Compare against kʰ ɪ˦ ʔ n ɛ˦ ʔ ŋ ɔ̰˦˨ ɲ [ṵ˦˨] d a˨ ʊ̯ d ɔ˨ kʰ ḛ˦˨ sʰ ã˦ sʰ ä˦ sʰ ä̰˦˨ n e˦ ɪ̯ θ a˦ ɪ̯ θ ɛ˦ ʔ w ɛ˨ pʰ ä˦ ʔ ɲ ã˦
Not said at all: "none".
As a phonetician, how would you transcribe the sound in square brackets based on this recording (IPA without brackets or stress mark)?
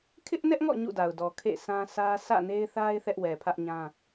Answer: ṵ˦˨